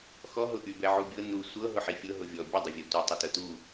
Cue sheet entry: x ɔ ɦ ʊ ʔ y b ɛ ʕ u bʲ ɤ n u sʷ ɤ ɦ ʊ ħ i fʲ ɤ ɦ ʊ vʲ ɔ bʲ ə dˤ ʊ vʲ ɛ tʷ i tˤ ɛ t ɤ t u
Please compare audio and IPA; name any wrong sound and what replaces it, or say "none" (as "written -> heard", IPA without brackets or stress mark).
none